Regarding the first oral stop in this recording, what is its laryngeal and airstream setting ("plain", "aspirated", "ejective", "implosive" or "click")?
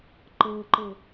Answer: click